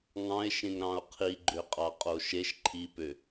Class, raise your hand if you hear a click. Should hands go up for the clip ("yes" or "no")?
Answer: yes